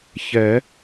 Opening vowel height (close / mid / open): mid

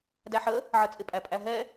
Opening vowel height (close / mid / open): open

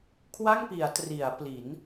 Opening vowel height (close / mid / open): open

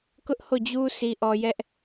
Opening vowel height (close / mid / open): close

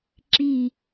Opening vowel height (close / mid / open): close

